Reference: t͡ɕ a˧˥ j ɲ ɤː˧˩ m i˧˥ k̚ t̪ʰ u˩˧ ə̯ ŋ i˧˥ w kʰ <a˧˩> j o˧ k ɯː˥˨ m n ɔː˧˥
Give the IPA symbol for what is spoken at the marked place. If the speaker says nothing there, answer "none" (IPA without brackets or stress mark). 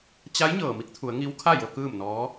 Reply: a˥˨